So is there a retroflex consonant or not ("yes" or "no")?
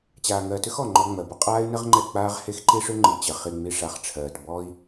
yes